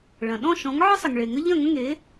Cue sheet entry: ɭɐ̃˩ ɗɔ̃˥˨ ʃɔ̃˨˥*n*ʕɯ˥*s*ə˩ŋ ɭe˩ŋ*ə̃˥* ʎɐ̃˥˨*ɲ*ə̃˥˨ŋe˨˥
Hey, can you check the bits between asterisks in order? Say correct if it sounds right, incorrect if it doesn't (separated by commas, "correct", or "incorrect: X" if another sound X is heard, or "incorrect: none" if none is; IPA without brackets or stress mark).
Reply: incorrect: ŋ, incorrect: sˤ, incorrect: ə˥, incorrect: ŋ